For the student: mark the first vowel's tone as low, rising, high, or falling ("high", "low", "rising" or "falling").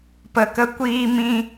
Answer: low